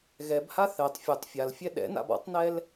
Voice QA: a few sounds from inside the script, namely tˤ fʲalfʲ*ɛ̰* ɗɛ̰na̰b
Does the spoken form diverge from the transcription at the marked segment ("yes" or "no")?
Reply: yes